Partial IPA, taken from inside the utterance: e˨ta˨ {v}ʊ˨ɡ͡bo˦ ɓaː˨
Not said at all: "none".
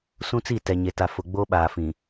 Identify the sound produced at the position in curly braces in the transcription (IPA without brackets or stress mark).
f